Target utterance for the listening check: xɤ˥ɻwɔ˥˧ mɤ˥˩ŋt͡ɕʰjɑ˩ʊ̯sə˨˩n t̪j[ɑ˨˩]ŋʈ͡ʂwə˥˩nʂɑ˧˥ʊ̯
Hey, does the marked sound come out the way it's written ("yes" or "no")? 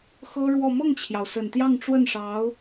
no